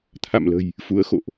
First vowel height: low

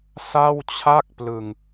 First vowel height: low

